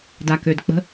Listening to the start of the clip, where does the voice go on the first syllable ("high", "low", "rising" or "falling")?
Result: low